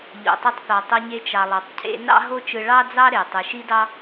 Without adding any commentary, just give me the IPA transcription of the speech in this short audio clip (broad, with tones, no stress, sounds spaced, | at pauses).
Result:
ʎ o̰˩ tˤ e˧ tˤ θ ɑ˩ tˤ o˧ ɲ e˧ t͡ʃ ɑ˩ lˠ ɑ˩ tˤ cʰ ḛ˧ n ɑ̰˥ ɦ o˥ t͡ʃ ɯ˧ ɭ ɑ˥ d͡z ɑ˥ ɾ e˩ tˤ ɯ˩ ʃ i˥ d ɑ˥